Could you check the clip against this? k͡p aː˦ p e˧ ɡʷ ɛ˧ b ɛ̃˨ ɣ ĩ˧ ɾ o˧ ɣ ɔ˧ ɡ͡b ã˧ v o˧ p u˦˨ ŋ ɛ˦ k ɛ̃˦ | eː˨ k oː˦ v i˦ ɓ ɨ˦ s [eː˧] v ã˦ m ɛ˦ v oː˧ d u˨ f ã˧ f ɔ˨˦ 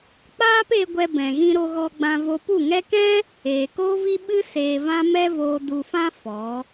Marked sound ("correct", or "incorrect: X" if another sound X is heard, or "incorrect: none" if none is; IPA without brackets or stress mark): correct